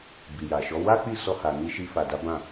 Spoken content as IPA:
b i˨ j a˨ ʃ ɔ˨˦ w a˦ k͡p i˦˨ s ɔ˧ h a˨ n i˧ ʃ i˧ f a˨ d a˨˦ b ã˦˨

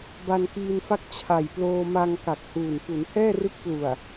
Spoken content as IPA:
b a˧ n k iː˧ n f a˥˩ k̚ t͡ɕʰ a˨˩ j p l oː˧ m a˧ ŋ k a˨˩ k̚ h uː˨˩ n p u˩˦ n h ɛː˥˩ r ɯ˦˥ k̚ p l u˨˩ a̯

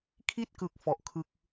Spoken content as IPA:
kʰ i˥˩ t̚ k ɯ˨˩ k̚ f ɔ˨˩ ʔ kʰ ɯ˦˥ k̚

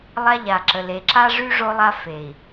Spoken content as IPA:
lˠ a˦ ʎ a˨ ǁ ə˨ l e˨ ǁ a˦ ʐ y˦ ʐ o˦ lˠ a˦ f e˨ i̯

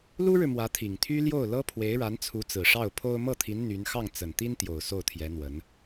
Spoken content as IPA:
l u˥ ɻ ɻ̩˨ m w ä˧˥ t̪ʰ i˨˩ ŋ t̪ʰ y˥ l j o˥˩ ʊ̯ l ɤ˥ pʰ w e˧˥ ɪ̯ ɻ a˧˥ n t͡sʰ u˧˥ t͡s ɹ̩˨˩ ʂ ɑ˥˩ ʊ̯ pʰ o˥ ʊ̯ m ɤ˥˩ t̪ʰ i˧˥ n n̪ y˧˥ n x ɑ˥˩ ŋ t͡s ə˨˩ n t̪ i˥ n t̪ j o˨˩ ʊ̯ s o˥˩ ʊ̯ t̪ʰ j ɛ˧˥ n̪ w ə˧˥ n

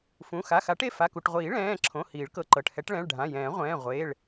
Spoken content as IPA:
f ũ˩˧˩ x a˩˧˩ x a˨˩˦ ʈ e˩˧˩ f a˩˧˩ k u˩˧˩ ʈ ʁʷ iː˨˩˦ ɭ ɛ̃ː˩˧˩ ǁʰ õ˩˧˩ h iː˨˩˦ ɭ k ɤ˩˧˩ ǃ ɤ˩˧˩ ʈ h ɛ˨˩˦ ʈ ɭ ɛ̃˩˧˩ ɭ ɖʱ ã˩˧˩ j ɛ̃ː˨˩˦ ʁʷ ɛ̃ː˩˧˩ ʁʷ eː˩˧˩ ɭ

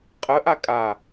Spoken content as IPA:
qʼ ə ʔ a kʼ a

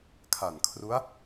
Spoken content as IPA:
kʰ a˨˩ n kʰ r u˦˥ a̯

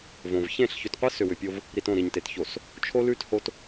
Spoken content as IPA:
v õ˨ v ç ẽ˦˨ ɬ ç ʏ˨ t qʷ ɯ˦ s ʏ˨ w ʏ˨ pʲ o˦ v | ɾ i˨ t õ˦˨ ɾ i˨ ɲ t e˨ t ç o˨ s | t͡ʃʰ o˦ l ʉ˦ t h o˦ t

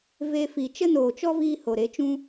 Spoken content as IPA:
v e˧ f i˨ t͡ʃ ə˦ n oː˨ t͡ʃ ɔ˦ v iː˧ h o˨ ɾ e˨˦ t͡ʃ ũ˦

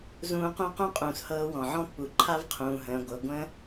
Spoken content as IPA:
z ũː˧ q ũ˥ q ũ˥ qʼ ũː˩ s h ɤː˧ w ɔ̃˩ ʕ ɔ̃˥ pː u˩ ǃʰ a˥ v qʰ ũː˩ ɦ ə̃ː˩ ɡʷ ɤ˩ ɡʷ ə̃ː˥

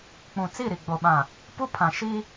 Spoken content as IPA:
k͡p ũ˨ t͡s i˦˨ ɾ i˨ ɡ͡b o˨ ɓ ã˨ | p u˦ pʰ ã˨ ʃ i˦

